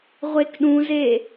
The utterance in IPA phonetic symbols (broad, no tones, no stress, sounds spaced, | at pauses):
ʁʷ e k ɗ ũ z e